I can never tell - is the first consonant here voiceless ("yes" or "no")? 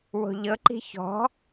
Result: no